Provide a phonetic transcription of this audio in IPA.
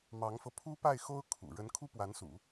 mɑ˧˥ŋfɤ˧ pʰu˥pa˥˩ɪ̯xo˥ʊ̯ kʰṵ˨˩ ɻə˧˥nkʰu˥pwa˧˥nsṵ˨˩˦

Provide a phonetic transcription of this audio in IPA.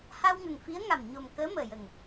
ha˧w ŋə˨˩ŋfi˧˥ə̯ ŋa˨˩mɲo˨˩mkəː˧˥ məː˨˩jə˨˩ŋ

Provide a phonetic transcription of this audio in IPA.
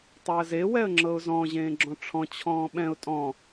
tˤɛə̯ze wɛə̯ŋ͡ǁɤʊ̯zɔ̃ ʑẽːɡ͡ǁɔ̃ʈ͡ʂʰɔ̃ t͡ɕʰɔ̃ːɓɛ̃ʊ̯ tʼɔ̃

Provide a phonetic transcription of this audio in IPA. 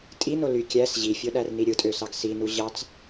tʼino ly kʲæs ʑifʲo ɗærniɾʲɯtʼø sɑɡsinu ʑɑt͡s

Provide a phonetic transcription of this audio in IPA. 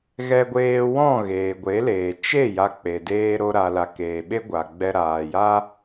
ɣɛ˧ɡʷeː˧ wɔ̃˦˨ ɣeː˨ɡʷe˨˦leː˨ t͡ʃe˦˨ ja˧k͡pe˨ deː˧ɾo˧ ɾa˨la˨keː˨ɓe˦ ɡʷa˨ɡ͡bɛ˧ ɾaː˨ja˦

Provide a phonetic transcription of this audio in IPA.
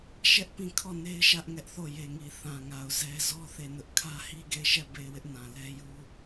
ʃɛ˦ʔpĩ˦˨ kʰɔ˦˨ne˦ɪ̯ʃä˦ʔ ŋɛ˦ʔθo˦˨je˨ŋi˨ θã˨ŋa˨ʊ̯ zɛ˦ zɔ˦ θe˦˨nʊ˦ʔ kʰä˦hi˦ɡe˦˨ɪ̯ʃɛ˦˨ be˦˨ɪ̯wɪ˦ʔnã˨lɛ˦ ju˦

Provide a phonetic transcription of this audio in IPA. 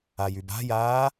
ajyba̤jaː

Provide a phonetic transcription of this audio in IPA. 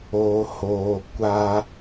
oː˨hoː˨kʷa˦

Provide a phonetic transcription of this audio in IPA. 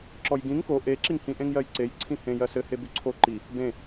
ǁɔjɡĩŋ ko ʔe ǁiŋhĩ ʔẽŋjɜjǀej ǀʰĩhẽ jɜsɘ hebʉǀʰo ǃi | bẽ

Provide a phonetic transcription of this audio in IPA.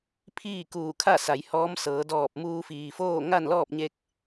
pʰiː˥˨kuː˧˩kʰa˥˨ sa˩˧jhɔː˧˥m sɤː˩˧dɔː˧˩p̚muː˧ fiː˩foː˥˨ ŋa˥˨nlɔː˥˨p̚ɲe˧k̚

